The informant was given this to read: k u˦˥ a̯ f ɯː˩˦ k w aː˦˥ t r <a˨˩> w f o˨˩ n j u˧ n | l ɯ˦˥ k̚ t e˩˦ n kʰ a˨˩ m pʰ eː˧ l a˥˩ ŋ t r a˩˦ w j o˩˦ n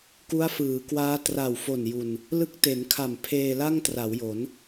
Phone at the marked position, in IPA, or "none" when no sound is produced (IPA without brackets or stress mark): a˨˩